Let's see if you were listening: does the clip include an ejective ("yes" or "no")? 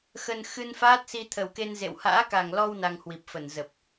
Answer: no